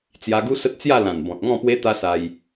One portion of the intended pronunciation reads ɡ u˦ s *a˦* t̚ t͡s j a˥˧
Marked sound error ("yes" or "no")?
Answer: yes